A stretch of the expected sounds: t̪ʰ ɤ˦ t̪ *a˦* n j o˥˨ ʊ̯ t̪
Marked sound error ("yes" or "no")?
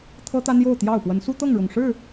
no